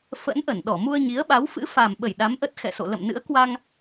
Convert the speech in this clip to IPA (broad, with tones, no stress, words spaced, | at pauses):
fə̰˧˥nʔə˧˩nɗɔ˧˩ mu˧ə̯ɲi˨˦ə̯ɓa˨˦w fɨ̰˧˥fa˨˩m ɓə˧˩j ɗa˨˦mʔə˦˥t̚xɛ̰˧˨so̰˧˨ lə̰˧˨mnɨ̰˧˥ə̯kwa˧ŋ